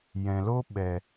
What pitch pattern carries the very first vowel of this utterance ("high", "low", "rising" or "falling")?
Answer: low